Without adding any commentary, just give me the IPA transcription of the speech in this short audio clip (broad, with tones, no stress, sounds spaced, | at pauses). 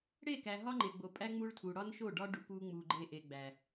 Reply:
ɽ e˦˨ k æ˨ ɦ ɒ˦ ŋ͡ǃ e˨ ɡ͡b o˨ pʼ æ˦ ŋ͡m u˦ ɭ tʰ u˨ ɽ ɒ˦ n ʃ o˦˨ ɖ ɒ˦ ɖ u˨ p u˦ ŋ͡m u˨ ɡ͡ǃ e˦ ʔ e˨ ɡ͡b æ˨